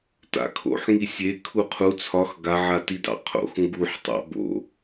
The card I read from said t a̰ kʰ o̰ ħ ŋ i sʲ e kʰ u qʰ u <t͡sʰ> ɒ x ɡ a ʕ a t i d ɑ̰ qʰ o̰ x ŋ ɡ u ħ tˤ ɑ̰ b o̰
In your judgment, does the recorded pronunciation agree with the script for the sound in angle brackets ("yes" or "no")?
yes